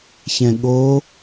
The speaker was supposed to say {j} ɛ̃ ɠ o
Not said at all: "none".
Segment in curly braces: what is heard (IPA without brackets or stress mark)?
ç